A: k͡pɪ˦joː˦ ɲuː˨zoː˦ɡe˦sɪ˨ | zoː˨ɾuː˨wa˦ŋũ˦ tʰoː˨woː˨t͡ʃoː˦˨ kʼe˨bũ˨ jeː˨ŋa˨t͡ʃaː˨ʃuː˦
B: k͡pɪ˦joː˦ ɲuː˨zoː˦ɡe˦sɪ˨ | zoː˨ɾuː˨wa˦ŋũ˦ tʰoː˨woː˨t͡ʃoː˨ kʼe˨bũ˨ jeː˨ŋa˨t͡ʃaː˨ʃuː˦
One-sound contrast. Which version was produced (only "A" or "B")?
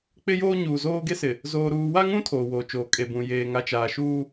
B